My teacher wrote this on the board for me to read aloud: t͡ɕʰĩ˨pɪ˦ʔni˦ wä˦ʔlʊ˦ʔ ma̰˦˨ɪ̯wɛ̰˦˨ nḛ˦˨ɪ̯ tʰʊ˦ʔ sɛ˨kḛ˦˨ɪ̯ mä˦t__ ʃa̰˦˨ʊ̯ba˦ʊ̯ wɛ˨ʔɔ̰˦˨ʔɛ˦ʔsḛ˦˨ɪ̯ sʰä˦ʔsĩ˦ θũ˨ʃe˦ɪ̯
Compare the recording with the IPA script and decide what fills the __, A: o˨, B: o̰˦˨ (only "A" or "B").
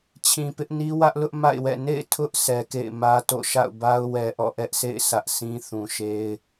B